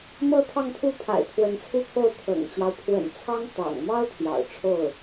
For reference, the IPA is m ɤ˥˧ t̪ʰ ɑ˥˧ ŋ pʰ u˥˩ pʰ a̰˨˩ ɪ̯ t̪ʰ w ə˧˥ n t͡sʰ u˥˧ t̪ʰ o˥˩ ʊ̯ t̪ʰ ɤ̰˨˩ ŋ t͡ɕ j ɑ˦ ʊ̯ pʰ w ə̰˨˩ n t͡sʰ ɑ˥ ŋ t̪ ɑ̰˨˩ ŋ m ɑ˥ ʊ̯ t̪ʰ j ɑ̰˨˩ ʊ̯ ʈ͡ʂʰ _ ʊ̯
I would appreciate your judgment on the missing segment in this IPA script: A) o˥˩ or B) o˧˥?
A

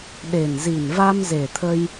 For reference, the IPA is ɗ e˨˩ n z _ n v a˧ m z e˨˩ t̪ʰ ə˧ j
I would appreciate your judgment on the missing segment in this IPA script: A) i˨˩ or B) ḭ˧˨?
A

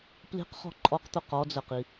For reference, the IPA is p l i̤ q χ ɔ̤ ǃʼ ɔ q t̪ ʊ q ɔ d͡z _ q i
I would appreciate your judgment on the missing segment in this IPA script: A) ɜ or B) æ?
A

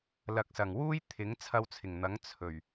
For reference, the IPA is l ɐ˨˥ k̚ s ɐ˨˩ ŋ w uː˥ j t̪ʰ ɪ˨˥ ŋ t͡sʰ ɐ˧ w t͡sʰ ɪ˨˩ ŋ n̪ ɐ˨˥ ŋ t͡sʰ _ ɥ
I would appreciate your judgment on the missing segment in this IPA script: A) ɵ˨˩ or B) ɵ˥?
A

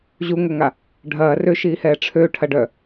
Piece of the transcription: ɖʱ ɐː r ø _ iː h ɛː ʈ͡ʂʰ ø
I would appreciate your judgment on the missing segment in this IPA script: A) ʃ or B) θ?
A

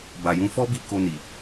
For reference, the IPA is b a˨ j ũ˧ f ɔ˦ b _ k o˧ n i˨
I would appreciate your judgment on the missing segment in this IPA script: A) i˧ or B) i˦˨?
A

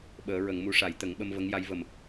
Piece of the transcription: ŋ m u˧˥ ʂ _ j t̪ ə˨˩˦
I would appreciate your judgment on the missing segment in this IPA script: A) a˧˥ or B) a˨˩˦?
B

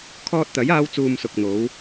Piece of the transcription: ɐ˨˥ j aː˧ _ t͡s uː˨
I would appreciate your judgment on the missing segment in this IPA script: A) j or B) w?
B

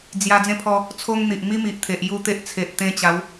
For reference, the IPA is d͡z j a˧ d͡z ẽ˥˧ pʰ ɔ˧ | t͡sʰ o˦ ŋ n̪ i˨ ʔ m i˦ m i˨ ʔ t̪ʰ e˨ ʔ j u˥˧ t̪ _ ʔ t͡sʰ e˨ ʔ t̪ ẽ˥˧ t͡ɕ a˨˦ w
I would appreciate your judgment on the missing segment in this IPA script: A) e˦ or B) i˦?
A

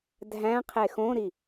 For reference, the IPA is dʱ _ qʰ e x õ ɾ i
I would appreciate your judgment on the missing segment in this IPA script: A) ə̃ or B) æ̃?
B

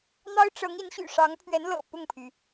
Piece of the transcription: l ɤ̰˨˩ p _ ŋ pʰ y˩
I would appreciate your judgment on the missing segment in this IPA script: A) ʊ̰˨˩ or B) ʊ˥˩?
B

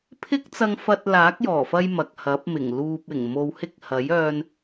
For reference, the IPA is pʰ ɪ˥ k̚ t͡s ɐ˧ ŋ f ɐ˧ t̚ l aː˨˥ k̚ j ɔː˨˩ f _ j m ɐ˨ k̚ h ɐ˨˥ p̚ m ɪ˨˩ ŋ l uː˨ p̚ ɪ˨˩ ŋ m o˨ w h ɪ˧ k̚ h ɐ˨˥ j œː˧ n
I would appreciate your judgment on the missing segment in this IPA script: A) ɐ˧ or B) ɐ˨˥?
A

